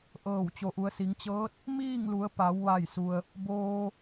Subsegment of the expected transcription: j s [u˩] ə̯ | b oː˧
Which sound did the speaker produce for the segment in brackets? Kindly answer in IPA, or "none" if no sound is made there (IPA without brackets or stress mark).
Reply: u˩